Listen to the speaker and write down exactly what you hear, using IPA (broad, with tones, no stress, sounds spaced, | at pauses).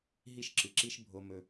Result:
ɦ i˧ ʃ ǁ ɨ˨˩ ǁ i˧ ʃ bʱ o˧ m ɵ˧